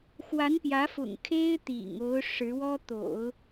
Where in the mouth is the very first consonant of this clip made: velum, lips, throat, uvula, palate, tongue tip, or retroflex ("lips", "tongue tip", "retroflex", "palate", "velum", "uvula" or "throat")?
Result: velum